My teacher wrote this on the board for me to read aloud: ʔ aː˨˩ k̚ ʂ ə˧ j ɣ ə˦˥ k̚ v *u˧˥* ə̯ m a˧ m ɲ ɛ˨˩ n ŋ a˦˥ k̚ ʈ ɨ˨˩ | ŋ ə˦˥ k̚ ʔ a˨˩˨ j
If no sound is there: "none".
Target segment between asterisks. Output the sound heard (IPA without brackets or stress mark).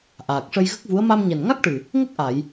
u˧˥